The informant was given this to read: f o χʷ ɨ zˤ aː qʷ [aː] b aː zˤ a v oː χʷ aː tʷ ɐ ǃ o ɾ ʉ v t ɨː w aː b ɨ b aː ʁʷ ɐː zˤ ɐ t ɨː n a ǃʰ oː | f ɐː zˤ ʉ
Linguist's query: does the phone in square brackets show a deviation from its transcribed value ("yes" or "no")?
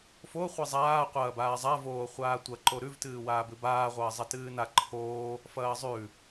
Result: yes